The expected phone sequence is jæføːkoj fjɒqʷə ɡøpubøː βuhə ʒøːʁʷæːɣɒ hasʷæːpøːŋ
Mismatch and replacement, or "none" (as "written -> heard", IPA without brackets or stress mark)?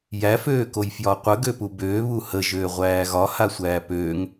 none